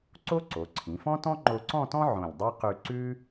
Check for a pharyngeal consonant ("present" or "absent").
present